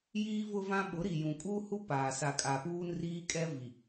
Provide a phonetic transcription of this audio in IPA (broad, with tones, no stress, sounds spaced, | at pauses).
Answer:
j iː˦ v ʊ˦ v ã˦ ɓ ʊ˨˦ ɾ i˨ j ũ˨ kʼ uː˦ h u˦ p aː˨ s a˨ kʼ a˨ p uː˦ n r iː˦ kʼ ɛ˦ v i˨